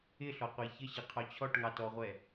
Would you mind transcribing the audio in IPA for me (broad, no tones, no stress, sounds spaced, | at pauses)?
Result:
ɪ ɬ ɔ qʷ æ ç ə ɕ ɪ qʰ ɔ t͡ɕʰ ɔ ʈ ŋ ɑ t ɔ ʁʷ ɛ